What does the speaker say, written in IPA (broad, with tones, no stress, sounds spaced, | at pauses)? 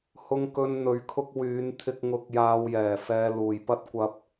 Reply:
h ʊ˧ ŋ k ɵ˧ n n̪ ɵ˧ ɥ kʰ ʊ˥ k̚ w yː˨˧ n t̪ʰ ɪ˧ k̚ ŋ ʊ˧ k̚ j aː˧ w j ɛː˨˩ f ɛː˧ l uː˨˩ j p ɐ˥ t̚ kʷ ɐ˧ p̚